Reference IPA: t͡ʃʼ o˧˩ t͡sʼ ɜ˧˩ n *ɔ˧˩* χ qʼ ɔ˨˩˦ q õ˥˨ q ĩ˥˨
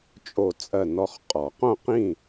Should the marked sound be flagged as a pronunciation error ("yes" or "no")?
no